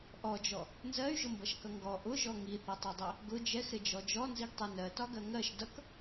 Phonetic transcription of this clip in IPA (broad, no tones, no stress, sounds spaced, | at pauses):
ʔ ɔ d͡ʒ ɔ | n z ɜ y̯ ʒ ʊ m b ʌ ʃ k ʌ ŋ ɡ ɔ ʔ ʊ ʒ ɔ ŋ i θ ʌ tˤ ɛ dˤ ɛ | ɡ ʊ d͡ʒ ɛ x ɾ ɪ d͡ʒ ɔ d͡ʒ ɔ n z i ɡ tˤ ɛ n ɜ t ɒ ɡ ɜ ŋ ɜ ʃ d ʌ k